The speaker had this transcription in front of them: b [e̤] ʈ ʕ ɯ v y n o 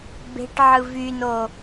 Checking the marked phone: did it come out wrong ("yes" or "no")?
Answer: no